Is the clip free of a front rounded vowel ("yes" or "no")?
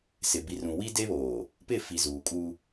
yes